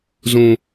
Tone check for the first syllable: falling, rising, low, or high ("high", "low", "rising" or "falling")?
high